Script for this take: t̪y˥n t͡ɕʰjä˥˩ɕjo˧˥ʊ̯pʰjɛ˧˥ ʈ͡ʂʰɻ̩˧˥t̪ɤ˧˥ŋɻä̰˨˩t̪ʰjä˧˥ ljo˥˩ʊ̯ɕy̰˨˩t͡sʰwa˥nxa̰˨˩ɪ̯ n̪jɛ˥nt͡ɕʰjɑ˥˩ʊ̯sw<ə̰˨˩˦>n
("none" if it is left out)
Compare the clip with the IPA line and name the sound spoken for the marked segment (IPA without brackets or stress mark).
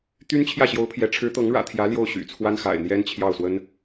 ə˥